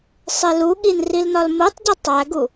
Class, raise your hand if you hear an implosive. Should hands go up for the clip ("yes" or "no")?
yes